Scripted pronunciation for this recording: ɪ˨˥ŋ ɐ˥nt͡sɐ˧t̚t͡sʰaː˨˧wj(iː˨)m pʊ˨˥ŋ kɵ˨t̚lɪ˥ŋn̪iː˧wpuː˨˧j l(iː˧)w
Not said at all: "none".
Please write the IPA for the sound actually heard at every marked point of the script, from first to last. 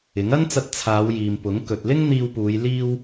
iː˨, iː˥

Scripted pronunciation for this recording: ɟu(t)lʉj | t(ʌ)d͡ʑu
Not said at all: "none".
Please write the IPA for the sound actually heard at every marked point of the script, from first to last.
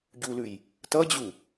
none, ʌ

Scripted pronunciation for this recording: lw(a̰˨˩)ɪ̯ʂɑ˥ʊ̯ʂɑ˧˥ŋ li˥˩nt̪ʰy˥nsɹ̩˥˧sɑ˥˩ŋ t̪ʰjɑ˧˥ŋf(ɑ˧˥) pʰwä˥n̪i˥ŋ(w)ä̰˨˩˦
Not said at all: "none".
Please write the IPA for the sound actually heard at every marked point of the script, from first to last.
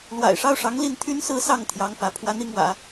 a̰˨˩, ä˧˥, w

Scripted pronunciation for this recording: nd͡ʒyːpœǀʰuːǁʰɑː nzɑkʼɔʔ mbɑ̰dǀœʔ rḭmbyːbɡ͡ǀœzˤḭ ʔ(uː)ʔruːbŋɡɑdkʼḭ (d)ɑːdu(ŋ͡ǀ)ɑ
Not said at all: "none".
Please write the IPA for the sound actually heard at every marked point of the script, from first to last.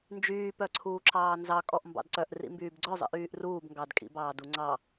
yː, b, ŋ͡ǀ

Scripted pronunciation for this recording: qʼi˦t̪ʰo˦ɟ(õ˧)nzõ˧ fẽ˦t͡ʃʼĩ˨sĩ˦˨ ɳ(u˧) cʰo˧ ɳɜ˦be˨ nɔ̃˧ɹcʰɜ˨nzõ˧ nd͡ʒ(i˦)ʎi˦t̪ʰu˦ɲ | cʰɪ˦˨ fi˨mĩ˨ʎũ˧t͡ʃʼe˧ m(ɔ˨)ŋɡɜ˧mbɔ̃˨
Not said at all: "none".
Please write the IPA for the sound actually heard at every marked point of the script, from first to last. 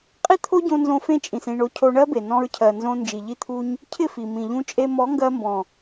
õ˧, o˧, i˨, ɔ˨˦

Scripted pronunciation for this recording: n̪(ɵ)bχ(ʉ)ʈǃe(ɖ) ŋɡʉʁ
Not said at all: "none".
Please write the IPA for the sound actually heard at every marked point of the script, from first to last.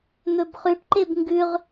ɵ, ʉ, b

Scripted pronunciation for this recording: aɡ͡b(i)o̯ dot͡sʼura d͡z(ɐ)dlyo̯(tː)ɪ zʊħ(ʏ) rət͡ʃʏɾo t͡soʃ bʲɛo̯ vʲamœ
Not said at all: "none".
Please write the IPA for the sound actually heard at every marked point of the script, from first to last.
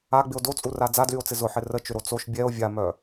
ɪ, a, t͡s, ɪ

